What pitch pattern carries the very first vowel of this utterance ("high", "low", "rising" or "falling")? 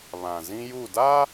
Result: low